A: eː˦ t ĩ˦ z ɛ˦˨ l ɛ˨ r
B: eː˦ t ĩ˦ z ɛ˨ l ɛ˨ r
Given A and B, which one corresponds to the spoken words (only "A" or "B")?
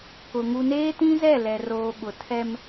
A